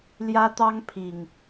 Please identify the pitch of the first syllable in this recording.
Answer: high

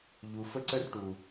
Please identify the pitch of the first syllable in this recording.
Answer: low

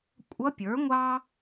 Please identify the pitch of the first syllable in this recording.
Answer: rising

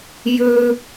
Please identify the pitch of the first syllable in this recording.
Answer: high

